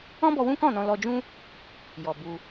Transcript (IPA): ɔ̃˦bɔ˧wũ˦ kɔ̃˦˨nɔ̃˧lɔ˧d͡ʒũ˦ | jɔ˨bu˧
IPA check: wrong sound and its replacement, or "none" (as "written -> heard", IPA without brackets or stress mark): none